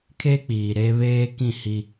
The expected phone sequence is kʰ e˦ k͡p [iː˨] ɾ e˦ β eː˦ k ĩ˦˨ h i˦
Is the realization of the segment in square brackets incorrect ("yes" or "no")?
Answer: no